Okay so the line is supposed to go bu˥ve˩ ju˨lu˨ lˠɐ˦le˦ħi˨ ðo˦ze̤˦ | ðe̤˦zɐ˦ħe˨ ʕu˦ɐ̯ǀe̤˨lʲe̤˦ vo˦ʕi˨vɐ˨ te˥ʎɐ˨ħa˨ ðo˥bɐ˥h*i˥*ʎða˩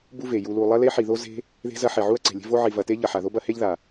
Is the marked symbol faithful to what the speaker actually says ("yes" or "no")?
no